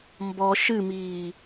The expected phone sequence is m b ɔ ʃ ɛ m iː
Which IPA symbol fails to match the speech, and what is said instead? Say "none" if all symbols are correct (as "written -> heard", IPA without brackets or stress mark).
ɛ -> ɨ